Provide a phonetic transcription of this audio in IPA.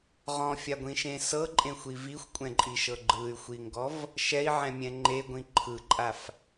ʁ ɔ̃ fʲ a ɡʷ ĩ ʃ ẽ s ɤ ǃʼ ẽ xʷ i v i xʷ kʷʼ ɛ̃ ǃʼ i ʃ ɤ ɡ͡ǃ ɯ y̯ xʷ i ŋ ɡ ɔ v | ʃ ɛ i̯ ʕ ɛ̃ mʲ ɛ̃ ŋ͡ǃ e ɡʷ ĩ ǃʰ ɯ ǃʼ a f

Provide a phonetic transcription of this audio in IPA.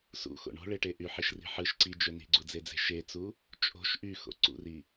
s ṵ x o̰ ɳ o̤ ɭ e ʈ e ʔ y ħ i ʃ r i̤ ħ ɯ ʃ ǀ i d͡ʒ ø n i̤ ɡ͡ǀ u d͡z e d͡z e̤ ʃ e t͡s u | t͡ʃʼ o̤ ʃ ʔ y x o̰ ǀ ṵ r i

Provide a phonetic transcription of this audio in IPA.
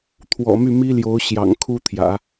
t̪ʰ w ɔ̰˨˩ m y˥˩ m i˥ l j o˧˥ ʊ̯ ɕ j ɑ̰˨˩ ŋ kʰ u˥ t̪ʰ j ä̰˨˩˦

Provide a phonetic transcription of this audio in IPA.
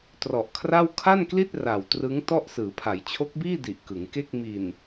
t r ɔ˨˩ ʔ kʰ r a˥˩ w kʰ a˥˩ n k l i˥˩ t̚ r a˨˩ w t r ɯ˦˥ ŋ t ɔ˥˩ ʔ s ɯː˩˦ pʰ a˩˦ j t͡ɕʰ o˦˥ k̚ b iː˥˩ d i˨˩ ʔ k ɯ˩˦ ŋ k e˥˩ k̚ m i˨˩ n

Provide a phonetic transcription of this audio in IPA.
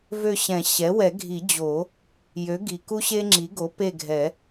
v ø˦˨ ɕ ɛ̃˨˩˦ ɕ ɛ˩˥ w ɛ˨˩˦ ɡʱ i˨˩˦ d͡ʑ o˨˩˦ | j ø˩˥ ɡ i˩ k u˦ ɕ e˦ ŋ͡ǁ i˩˥ ɡ o˩˥ p e˦˨ ɡʱ ɛ˨˩˦

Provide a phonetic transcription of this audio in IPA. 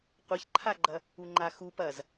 qʷ ɐ ç ǃʰ a ɡ͡ǃ ɐ | u ŋ͡ǃ a x u p ɐ z

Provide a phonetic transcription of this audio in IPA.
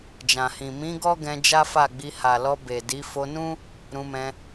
d͡ʒ ã˨ h ĩ˨ m ĩ˨˦ ɡ ɔ˦ ɡ ɛ̃˧ d͡ʒ a˦ f a˦˨ ɡ͡b i˧ h a˨ l ɔ˧ b e˨ d i˨˦ f o˧ n ũ˦ | ɾ ũ˧ m ɛ̃˧

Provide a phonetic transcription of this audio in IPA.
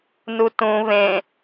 n u t ũ β ẽ

